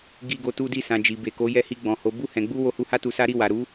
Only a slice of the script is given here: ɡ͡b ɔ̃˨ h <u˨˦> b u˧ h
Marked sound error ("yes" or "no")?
yes